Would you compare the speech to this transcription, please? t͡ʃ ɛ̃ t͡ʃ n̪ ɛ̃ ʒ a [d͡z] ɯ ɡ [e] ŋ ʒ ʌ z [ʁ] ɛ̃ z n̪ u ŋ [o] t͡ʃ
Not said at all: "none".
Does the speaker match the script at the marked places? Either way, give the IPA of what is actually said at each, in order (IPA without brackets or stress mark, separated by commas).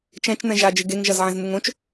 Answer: d͡ʒ, e, ʕ, õ